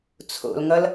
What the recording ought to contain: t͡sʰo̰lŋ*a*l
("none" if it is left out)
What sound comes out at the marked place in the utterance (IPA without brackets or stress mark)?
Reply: ʌ